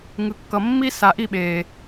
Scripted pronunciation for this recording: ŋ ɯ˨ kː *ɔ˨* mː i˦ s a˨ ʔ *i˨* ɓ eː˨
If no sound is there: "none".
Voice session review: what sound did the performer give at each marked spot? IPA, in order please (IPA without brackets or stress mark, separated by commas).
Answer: ʌ˨, i˦˨